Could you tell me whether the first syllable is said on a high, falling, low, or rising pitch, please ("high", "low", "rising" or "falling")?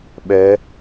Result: rising